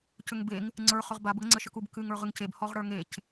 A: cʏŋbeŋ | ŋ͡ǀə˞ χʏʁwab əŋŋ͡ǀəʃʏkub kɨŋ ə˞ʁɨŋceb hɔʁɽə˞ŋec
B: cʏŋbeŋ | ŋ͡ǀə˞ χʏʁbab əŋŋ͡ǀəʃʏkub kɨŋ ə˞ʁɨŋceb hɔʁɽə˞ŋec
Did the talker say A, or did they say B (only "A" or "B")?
B